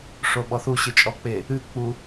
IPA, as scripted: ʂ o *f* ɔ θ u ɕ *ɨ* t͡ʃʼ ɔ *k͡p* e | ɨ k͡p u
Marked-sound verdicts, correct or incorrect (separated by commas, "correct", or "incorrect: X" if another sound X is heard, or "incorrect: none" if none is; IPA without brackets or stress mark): incorrect: ɓ, correct, correct